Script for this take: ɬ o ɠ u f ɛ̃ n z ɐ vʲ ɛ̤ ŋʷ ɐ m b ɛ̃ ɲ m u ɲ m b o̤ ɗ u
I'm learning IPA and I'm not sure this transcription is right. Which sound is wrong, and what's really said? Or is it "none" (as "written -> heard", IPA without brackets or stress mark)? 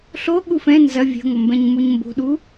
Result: none